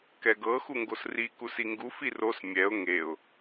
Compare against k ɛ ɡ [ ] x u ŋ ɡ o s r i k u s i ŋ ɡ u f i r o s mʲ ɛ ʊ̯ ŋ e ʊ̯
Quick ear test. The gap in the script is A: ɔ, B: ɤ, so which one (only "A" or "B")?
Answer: B